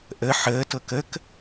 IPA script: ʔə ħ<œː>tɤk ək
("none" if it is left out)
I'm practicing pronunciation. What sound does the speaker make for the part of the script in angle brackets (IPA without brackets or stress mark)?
əː